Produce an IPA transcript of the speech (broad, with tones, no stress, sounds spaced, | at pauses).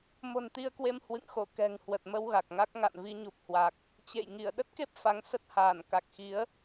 m o̤˨˩ n t̪ i˧ ə̯ k w e˧ m h w ɨ̰˧˨ ŋ x o˧˩ k ɛ̤˨˩ ŋ h w ə˨˩ t̚ m ə˧ w ɣ a˨˩ k̚ ŋ a˦˥ k̚ ŋ a̰˧˨ n v i˧ ɲ u˨˩ p̚ h w a˨˩ k̚ | t͡ɕ ḛ˧˨ j ŋ i˧˩ ə̯ ɗ ə˦˥ t̚ k e˦˥ p̚ f a˨˦ ŋ s ə˦˥ t̚ h aː˧˩ n k a˨˩ k̚ x i˨˦ ə̯